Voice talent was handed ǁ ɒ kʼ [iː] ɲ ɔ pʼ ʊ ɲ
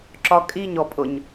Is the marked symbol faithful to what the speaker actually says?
no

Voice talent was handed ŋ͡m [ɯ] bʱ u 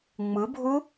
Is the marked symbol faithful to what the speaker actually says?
yes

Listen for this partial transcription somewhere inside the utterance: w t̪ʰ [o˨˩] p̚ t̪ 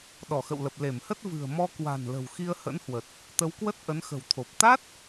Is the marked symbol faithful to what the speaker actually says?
yes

